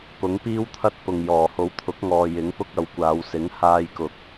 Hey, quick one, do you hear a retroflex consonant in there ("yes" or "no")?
no